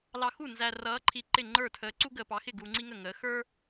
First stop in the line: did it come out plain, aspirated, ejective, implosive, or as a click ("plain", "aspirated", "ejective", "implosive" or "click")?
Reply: click